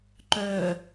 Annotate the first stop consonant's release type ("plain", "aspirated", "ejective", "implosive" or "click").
click